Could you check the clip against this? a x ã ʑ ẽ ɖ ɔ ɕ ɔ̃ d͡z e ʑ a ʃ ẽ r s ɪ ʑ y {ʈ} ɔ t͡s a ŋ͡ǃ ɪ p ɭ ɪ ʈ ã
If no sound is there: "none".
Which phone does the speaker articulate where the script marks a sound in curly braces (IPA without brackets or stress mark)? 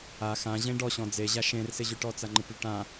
ʈ